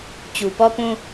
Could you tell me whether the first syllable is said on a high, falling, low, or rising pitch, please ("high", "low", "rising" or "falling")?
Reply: low